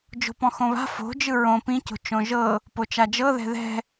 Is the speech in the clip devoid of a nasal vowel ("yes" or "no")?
no